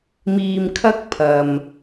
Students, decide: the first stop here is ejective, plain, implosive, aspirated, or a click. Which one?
aspirated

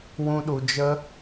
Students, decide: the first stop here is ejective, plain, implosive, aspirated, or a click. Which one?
implosive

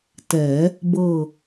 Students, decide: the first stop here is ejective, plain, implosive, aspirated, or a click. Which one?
plain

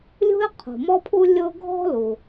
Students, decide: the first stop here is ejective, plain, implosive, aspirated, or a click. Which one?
aspirated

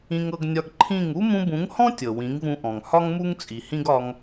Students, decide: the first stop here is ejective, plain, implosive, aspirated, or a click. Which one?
plain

